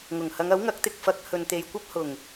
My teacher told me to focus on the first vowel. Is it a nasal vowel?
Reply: no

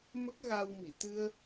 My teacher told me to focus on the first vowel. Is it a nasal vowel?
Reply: no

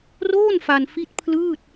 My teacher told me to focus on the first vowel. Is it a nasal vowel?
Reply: no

